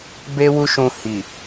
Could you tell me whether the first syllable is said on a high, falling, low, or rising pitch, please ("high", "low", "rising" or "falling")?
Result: high